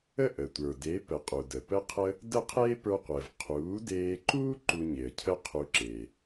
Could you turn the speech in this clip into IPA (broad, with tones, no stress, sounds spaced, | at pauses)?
ə˥˩ ʔ ə˩ tʷ ə˞˩ d e˩˥ p ə˩˥ qʼ u˩ d ə˩ p ə˥ qʰ ə˥ | d ə˥˩ qʰ eː˥ p ə˞˧ qʷ əː˩ v qʰ uː˩˥ d eː˧ ǃ u˥ ǃ u˧ ɲ e˩ ə̯ cʰ ə˥ qʰ u˧ ǁ e˩